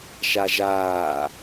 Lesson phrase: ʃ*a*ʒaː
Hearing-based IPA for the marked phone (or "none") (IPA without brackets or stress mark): a